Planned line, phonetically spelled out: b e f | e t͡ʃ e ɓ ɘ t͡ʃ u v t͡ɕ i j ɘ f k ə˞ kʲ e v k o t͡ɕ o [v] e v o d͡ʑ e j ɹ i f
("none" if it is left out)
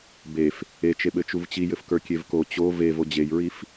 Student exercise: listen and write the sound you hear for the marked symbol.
v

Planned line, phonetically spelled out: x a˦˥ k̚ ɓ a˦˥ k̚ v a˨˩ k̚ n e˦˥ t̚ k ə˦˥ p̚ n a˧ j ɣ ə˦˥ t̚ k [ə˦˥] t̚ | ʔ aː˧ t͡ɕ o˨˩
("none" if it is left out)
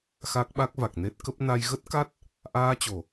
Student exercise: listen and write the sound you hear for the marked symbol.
a˦˥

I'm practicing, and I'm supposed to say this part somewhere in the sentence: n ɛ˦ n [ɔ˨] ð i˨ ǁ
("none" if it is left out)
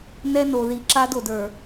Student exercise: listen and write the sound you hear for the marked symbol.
o˨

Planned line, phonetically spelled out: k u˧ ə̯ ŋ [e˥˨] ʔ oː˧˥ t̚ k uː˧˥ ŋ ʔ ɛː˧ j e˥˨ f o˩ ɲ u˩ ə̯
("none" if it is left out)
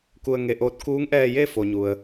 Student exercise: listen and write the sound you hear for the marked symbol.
e˧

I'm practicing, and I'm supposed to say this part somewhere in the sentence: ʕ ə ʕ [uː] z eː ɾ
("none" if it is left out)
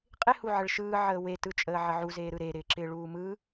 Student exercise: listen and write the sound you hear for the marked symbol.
u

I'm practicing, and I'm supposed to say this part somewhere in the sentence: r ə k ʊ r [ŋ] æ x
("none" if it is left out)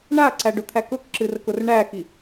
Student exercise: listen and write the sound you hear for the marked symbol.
ɳ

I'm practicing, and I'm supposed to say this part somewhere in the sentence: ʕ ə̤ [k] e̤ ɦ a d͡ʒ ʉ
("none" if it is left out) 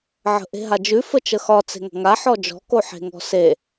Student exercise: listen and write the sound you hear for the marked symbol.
ʔ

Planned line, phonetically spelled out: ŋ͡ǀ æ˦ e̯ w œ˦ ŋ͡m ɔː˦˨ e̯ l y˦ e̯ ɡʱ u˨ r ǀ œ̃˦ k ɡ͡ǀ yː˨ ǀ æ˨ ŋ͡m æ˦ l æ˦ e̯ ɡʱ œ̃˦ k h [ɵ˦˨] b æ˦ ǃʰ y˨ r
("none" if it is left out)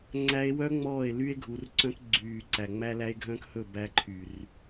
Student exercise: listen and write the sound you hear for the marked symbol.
ɵ˦˨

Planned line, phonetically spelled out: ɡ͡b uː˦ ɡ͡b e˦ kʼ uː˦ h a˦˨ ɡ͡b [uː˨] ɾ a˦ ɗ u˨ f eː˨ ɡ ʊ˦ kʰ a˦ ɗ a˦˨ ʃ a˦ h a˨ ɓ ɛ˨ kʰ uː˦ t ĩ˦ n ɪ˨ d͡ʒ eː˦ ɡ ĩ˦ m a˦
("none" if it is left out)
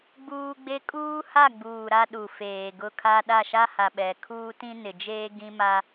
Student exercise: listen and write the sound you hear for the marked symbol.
uː˨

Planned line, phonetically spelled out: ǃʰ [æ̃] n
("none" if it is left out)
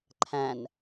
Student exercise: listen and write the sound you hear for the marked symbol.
æ̃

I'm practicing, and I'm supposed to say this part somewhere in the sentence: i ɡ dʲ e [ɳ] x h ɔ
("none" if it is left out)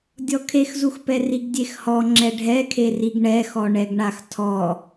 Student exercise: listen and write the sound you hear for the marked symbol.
none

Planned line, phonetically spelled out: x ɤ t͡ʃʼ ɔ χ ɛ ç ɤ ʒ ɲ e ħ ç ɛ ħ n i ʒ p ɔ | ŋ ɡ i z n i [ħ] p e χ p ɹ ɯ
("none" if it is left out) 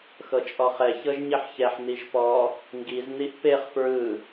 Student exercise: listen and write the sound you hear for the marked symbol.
ʔ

